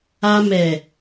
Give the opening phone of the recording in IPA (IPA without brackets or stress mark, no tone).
a